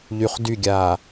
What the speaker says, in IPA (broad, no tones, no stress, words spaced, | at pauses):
ʎyχ dyɡʲaː